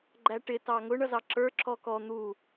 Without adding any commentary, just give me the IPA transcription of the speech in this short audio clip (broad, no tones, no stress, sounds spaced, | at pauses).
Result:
ɡ͡ǃ æ ʈ ɪ t ɑ ŋ ʊ ɳ ʌ z ɑ ǁ ə˞ ǁ ɔ k ɔ n̪ u